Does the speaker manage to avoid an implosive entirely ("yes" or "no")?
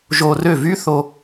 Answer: yes